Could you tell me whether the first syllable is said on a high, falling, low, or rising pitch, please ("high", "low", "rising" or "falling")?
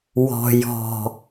low